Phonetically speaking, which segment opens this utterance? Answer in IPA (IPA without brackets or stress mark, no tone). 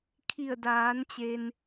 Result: kʰ